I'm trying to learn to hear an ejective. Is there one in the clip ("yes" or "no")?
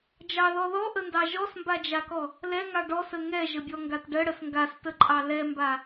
yes